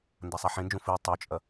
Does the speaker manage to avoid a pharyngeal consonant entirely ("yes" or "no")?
no